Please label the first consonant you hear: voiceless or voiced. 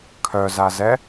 voiceless